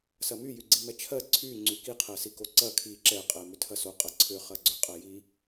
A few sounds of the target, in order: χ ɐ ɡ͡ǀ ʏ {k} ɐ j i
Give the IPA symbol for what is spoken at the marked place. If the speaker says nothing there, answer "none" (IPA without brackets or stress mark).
qʼ